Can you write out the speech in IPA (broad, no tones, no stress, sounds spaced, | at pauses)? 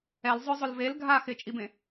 ɛ l zˤ ʊ zˤ ʊ l v e l ɡʱ a x ɪ t͡ʃʼ i b ẽ